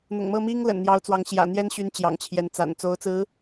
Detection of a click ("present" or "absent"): absent